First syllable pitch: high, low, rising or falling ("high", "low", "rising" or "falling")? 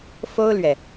high